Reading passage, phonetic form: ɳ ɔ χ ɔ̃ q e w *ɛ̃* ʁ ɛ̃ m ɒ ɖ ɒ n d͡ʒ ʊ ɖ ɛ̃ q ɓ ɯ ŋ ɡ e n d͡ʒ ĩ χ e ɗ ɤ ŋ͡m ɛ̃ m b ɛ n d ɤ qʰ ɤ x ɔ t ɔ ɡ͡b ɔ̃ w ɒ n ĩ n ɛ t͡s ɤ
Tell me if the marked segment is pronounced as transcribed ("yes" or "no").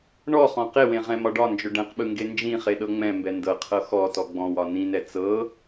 no